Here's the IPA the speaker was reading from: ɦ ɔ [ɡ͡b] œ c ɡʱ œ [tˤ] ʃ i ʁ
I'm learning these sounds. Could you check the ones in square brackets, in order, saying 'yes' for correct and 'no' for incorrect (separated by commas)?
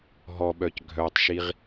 no, yes